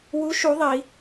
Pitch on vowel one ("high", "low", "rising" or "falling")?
rising